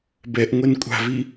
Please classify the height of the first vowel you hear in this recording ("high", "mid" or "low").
mid